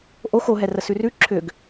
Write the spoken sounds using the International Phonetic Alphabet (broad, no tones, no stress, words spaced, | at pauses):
ʔox oɦɛrə sʉrʉ ǁʰʏɡ